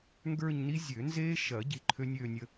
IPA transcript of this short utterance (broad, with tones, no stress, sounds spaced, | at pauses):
ŋ ɡ ə˞˥˧ ɲ n i˦˥ zʲ ø˨˩˦ n z eː˦˥ ʃ ɐ˨˩˦ ɟ i˨˥ ǃʰ ø˦˥ nʲ øː˥˧ nʲ ə˥˧